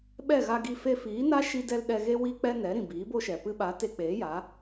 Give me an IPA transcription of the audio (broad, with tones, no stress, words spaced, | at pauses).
ɓɛ˦˨ɣa˧ɡi˧ fe˧fiː˨˦na˦ ʃi˧dɛ˧l ɗɛ˧ɣe˦ wi˦k͡pɛ˦ nɛ˨˦ ɾĩ˨biː˨˦bo˦ʃɛ˨ pɨ˧ɓa˨˦ te˧k͡peː˨˦ja˨˦